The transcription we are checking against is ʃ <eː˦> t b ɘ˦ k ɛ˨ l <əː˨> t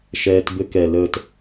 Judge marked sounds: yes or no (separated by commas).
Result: no, yes